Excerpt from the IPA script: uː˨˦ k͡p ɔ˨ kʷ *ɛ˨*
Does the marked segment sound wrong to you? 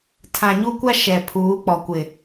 yes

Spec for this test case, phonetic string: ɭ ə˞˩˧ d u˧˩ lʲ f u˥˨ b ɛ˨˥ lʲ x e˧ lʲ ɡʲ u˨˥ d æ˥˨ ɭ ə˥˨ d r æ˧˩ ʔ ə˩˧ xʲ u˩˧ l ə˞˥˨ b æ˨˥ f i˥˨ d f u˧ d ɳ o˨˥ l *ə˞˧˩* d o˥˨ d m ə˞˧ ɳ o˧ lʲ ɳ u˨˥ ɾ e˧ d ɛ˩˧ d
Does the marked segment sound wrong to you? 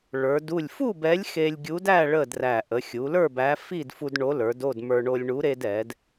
yes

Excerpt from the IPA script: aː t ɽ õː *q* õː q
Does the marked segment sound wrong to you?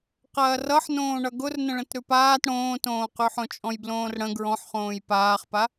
yes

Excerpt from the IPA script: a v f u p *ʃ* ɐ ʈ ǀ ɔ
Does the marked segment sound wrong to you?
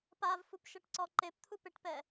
no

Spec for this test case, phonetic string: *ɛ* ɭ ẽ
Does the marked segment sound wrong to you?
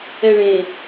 no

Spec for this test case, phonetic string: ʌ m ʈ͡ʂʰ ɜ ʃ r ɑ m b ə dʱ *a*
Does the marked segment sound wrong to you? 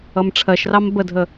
yes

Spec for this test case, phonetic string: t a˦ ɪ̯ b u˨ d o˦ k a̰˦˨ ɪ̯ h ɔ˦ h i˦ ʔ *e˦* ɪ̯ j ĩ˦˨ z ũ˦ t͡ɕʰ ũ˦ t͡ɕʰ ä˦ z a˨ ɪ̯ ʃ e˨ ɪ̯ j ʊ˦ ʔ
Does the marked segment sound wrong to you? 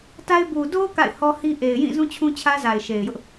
yes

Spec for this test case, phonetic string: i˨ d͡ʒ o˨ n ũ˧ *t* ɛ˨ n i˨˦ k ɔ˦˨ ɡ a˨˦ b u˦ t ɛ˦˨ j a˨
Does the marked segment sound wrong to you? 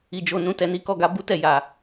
no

